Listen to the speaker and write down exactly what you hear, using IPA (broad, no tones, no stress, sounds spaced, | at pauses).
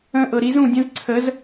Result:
ə̃ ʔ ɤ ɾ i z ũ dʲ ə̃ z ǀʰ ə z